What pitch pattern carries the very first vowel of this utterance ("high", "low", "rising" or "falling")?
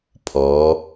rising